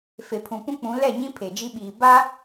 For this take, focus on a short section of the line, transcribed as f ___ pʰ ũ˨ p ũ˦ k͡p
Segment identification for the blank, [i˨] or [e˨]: e˨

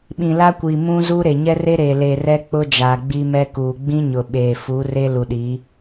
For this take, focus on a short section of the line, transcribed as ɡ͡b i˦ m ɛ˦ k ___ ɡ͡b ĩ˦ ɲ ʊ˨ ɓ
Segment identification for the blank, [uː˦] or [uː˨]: uː˨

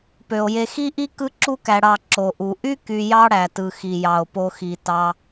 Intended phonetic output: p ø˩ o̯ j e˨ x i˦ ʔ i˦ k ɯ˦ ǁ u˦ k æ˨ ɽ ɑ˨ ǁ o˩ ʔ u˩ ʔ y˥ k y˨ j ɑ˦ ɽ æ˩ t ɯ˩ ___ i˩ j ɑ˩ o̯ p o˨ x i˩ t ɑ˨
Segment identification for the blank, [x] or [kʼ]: x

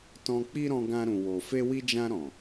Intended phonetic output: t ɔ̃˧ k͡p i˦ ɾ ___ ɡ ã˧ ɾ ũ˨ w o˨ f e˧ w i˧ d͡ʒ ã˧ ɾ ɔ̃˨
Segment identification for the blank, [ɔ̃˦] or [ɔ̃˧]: ɔ̃˧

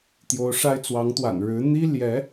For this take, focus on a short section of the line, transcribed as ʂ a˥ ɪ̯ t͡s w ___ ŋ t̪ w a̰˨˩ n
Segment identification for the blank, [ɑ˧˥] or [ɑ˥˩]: ɑ˧˥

